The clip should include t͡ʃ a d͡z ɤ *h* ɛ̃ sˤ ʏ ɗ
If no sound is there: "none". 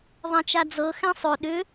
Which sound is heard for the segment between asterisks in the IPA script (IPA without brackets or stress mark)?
x